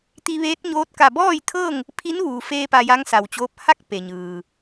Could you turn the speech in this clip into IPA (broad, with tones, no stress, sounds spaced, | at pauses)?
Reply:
t̪ i˧ ʋ eː˧˥ t̚ ɲ oː˧˥ t̚ k a˧˩ b ɔː˥˨ j t̪ʰ ɤː˥˨ ŋ | pʰ i˧˥ n ʋ uː˩ f eː˧ p a˧ j a˧˥ ŋ s a˩ w t͡ɕ oː˧˥ p̚ h a˥˨ k̚ p e˩ ɲ ɯː˩